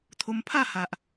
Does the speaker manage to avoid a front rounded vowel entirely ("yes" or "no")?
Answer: yes